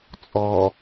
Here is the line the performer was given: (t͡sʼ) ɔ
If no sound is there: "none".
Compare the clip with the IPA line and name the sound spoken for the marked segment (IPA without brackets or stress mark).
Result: t͡sʼ